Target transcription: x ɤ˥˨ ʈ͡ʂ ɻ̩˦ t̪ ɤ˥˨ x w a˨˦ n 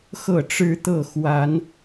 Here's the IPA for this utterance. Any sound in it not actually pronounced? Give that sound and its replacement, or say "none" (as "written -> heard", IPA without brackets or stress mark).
none